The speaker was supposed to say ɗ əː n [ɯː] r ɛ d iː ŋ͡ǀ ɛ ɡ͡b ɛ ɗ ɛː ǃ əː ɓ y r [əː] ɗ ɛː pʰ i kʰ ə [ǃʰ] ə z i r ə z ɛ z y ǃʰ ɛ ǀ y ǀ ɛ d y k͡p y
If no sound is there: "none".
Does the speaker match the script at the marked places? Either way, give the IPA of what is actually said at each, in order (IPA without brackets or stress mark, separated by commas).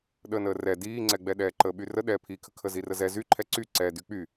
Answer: əː, ə, kʰ